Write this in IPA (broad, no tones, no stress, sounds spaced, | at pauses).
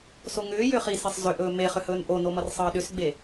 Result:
s o ŋ ʏː j ʏ χ i s e sˤ z ʏ ʔ ɵː m e χ ʏ h ɵː n ʔ o n o m ʌ r sˤ ʌː ɗ ʏ s ɡ͡b e